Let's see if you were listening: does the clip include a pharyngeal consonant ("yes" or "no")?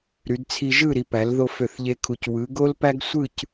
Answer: no